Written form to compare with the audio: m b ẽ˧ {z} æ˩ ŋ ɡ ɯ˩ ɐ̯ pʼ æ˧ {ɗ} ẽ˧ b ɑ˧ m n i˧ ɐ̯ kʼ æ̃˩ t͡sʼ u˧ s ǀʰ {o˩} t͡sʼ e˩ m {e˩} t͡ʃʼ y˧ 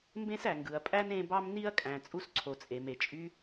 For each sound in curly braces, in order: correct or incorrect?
incorrect: s, incorrect: n, correct, correct

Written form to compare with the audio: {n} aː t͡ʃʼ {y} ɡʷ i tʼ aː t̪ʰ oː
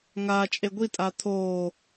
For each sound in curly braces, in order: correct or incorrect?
incorrect: ŋ, incorrect: e

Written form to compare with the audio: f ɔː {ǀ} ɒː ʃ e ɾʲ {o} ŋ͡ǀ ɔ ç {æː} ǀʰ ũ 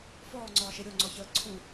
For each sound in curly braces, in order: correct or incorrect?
incorrect: ŋ͡ǀ, correct, incorrect: əː

